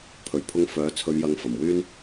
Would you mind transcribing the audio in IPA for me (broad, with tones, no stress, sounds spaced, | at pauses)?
pʰ ɵ˨˩ ɥ pʰ ʊ˧ ŋ f œː˨˥ t͡sʰ ɵ˨˧ ɥ j ɐ˨˧ ŋ f ɐ˨˩ m w yː˥ n